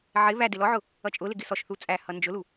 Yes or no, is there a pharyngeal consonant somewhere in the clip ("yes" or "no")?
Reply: yes